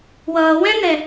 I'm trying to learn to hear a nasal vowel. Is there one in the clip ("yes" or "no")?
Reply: yes